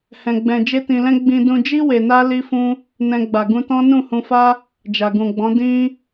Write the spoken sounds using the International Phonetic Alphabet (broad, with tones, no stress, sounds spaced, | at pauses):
h ɛ̃˧ ɡ͡b ɛ̃˧ d͡ʒ e˦ t ĩ˧ l ɛ̃˦ ɡ͡b ĩ˧ d ũ˧ d͡ʒ i˦ w e˧ n a˦ l i˦ f ũ˦ | n ɛ̃˧ ɡ͡b a˨ ɡ ũ˧ t ɔ̃˦ n ũ˦˨ h ũ˧ f a˦ | d͡ʒ a˨ ɡ ũ˨ ɡ͡b ɔ̃˨˦ d ĩ˦